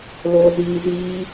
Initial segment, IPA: l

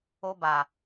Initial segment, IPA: o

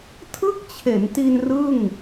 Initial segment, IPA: tʰ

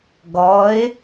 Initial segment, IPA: ɡ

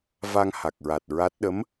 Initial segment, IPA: v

